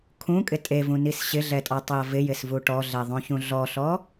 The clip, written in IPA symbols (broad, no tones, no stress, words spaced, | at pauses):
kʰũkʼɪ tʼevũnis ɕɪɮɛtʼɔtˤɛɐ̯ vɪjɪsvu ʈɔɮɛðˤõçũ ɮɔɬɔ